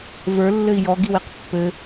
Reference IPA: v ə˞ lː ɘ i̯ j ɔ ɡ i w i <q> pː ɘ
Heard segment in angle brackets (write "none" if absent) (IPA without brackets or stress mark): q